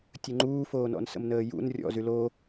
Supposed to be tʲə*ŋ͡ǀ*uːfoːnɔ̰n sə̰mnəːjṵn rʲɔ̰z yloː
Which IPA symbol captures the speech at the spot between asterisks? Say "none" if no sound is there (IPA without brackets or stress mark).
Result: ŋ͡ǃ